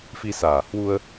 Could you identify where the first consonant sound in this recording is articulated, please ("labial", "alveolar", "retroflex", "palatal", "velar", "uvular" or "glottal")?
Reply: labial